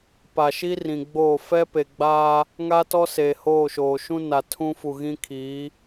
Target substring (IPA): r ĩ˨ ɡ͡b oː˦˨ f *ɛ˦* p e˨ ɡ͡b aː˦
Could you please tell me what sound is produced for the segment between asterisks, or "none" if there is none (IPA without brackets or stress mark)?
ɛ˦